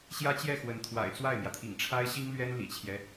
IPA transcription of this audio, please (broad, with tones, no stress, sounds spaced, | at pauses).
ɕ j ä˥ t͡ɕ j ɛ˥˩ x w ə˧˥ n t̪ʰ w a̰˨˩ ɪ̯ t͡s w a˥˩ ɪ̯ m j ä˩ t̪ʰ ḭ˨˩ ŋ ʈ͡ʂʰ a˥ ɪ̯ ɕ i˥ ŋ l ɥ ɛ˥ n l ḭ˨˩ t͡ɕʰ j ɛ˦